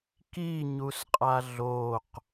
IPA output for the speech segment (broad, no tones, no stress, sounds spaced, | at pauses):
k i ɲ u s qʼ a ɮ o q